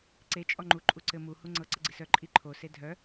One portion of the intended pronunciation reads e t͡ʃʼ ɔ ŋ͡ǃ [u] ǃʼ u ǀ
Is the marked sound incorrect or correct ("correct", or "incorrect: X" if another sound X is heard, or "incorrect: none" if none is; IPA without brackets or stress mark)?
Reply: correct